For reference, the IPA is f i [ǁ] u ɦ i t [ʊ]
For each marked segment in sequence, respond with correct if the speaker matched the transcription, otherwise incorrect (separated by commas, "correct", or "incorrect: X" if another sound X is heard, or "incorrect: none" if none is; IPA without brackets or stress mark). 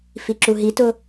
correct, correct